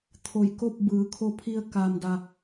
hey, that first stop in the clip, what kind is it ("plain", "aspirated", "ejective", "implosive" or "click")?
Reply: aspirated